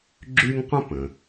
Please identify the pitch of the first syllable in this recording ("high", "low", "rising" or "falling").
high